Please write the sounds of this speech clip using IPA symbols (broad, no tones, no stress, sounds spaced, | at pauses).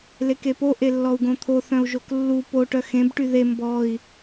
l e k e p o ʔ e lː ɔ u̯ ɡ õ t̪ʰ o θ œ̃ u̯ ʒ o k lː u p o ʈ œ x ẽ b ʈ y ð e m b ɔ i̯